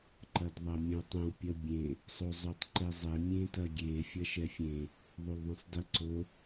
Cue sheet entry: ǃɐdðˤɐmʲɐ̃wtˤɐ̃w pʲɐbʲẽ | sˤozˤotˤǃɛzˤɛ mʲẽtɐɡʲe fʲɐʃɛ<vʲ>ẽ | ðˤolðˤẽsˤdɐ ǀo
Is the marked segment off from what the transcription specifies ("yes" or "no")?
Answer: yes